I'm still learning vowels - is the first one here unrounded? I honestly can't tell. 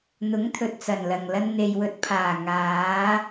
no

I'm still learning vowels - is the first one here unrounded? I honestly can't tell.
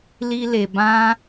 yes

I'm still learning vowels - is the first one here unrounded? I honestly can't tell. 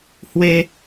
yes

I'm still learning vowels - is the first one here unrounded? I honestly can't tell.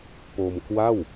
no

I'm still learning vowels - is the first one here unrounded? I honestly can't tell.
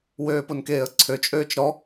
no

